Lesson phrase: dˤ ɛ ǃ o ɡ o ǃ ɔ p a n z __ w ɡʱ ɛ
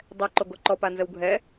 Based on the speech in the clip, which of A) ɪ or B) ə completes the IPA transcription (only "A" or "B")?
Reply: B